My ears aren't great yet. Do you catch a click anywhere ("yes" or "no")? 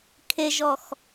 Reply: no